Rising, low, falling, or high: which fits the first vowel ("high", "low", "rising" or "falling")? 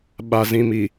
low